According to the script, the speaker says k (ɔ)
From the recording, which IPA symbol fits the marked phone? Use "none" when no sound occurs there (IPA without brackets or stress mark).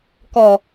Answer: ɔ